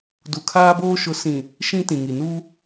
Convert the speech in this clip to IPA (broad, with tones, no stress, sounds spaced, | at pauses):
d u˨ kʰ aː˦ b oː˦ ʃ ʊ˨˦ s ĩ˨ | ʃ ĩ˦ t ĩ˨ ŋ i˨ n u˦